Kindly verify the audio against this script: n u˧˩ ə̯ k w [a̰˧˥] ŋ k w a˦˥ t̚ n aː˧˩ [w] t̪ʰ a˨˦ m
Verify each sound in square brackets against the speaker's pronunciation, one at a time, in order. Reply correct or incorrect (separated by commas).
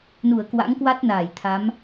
correct, incorrect